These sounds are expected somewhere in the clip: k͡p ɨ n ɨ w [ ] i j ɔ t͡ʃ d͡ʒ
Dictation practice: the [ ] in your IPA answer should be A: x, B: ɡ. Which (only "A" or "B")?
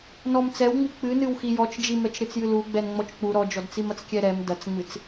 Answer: A